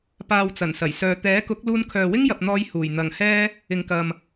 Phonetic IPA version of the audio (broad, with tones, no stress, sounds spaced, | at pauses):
p aː˨ w t͡s ɐ˨˩ n s ɐ˨˩ j s œː˨ t̪ ɛː˨˥ k ʊ˨˥ k̚ l uː˧ n kʰ œː˨ w ɪ˥ ŋ j ɐ˨ p̚ n̪ ɔː˧ j h uː˨˩ j n̪ ɐ˨˩ ŋ h ɛː˧ | ɪ˨ ŋ k ɐ˨ m